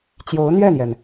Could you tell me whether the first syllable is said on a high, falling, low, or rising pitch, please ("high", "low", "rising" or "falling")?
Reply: rising